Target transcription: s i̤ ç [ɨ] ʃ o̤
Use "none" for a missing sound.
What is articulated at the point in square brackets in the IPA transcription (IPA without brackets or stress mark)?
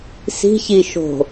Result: i